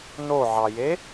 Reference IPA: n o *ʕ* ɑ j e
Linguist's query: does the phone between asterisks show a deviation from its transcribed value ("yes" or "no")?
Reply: no